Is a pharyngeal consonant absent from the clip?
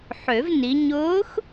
no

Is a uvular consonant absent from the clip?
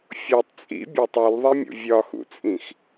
yes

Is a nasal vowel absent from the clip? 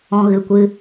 no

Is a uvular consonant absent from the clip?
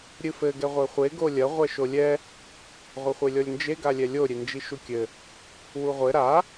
no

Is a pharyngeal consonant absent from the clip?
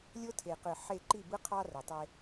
no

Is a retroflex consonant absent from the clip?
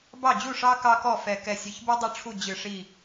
no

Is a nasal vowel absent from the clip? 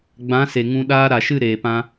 no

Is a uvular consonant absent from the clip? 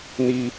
yes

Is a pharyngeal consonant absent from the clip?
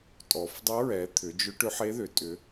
no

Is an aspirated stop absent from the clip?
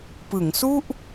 yes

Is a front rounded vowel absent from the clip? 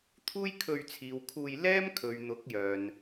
no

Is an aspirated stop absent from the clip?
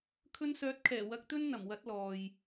no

